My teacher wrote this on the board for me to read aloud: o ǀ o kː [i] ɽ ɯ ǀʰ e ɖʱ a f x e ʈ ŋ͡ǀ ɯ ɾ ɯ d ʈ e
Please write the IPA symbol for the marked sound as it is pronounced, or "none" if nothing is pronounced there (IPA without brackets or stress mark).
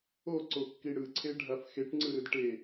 i